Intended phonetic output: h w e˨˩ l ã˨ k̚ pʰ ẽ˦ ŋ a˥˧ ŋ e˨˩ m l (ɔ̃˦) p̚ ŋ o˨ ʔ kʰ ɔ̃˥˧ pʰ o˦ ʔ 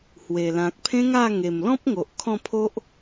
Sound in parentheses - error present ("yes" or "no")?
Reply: no